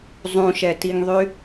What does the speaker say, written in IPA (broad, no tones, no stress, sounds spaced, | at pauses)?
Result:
zˤ ũ ʃ ɛ t i ŋ ðˤ y